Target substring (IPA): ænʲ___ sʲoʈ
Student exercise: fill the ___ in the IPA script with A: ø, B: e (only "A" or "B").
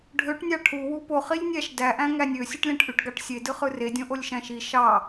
A